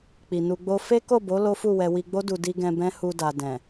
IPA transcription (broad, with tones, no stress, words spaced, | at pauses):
k͡pi˨nu˧ɡ͡bo˦ fe˦ko˦˨bo˨˦ lo˦fu˦˨wɛ˧ wi˧ɡ͡bo˦du˧ di˧ɡɛ̃˧ bɛ̃˦ hu˧da˨ dɛ̃˨